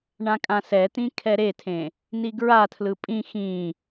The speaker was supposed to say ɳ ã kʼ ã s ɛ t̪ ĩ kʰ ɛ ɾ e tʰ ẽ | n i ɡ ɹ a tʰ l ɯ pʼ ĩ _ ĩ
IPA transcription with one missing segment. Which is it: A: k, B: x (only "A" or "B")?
B